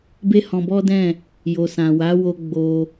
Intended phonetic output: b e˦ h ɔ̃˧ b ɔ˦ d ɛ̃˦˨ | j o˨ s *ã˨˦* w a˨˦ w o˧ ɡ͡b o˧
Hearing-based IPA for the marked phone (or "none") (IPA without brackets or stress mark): ã˨